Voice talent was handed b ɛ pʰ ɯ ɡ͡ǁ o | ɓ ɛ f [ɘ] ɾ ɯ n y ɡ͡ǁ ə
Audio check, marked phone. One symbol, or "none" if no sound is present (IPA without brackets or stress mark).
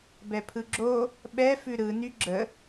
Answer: ʉ